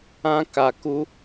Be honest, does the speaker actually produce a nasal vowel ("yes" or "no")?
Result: yes